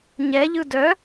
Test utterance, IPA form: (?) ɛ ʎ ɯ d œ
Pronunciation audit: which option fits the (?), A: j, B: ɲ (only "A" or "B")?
B